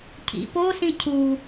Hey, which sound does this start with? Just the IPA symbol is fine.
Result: cʰ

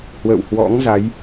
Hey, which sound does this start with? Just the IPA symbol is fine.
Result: h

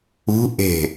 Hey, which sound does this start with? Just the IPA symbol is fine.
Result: ṳ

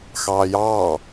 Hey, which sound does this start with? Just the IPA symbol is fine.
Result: x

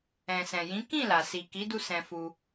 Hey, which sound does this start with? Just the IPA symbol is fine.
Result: ɛ̃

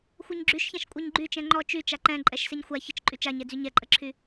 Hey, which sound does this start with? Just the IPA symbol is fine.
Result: xʷ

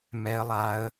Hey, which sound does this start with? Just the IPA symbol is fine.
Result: m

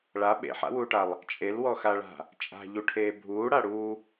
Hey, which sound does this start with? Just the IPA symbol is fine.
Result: ɭ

